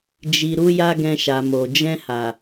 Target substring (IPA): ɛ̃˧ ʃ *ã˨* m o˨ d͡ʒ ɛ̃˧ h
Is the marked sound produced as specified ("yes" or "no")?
no